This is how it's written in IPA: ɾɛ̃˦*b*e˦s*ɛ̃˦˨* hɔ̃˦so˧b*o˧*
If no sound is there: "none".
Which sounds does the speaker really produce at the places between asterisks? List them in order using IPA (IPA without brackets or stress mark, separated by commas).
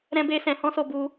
b, ɛ̃˧, u˧